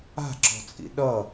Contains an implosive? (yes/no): yes